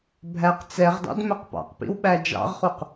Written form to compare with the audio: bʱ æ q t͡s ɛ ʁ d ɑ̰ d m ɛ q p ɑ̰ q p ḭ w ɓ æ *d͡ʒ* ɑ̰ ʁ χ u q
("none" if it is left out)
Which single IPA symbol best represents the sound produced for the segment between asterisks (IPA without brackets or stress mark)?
d͡ʒ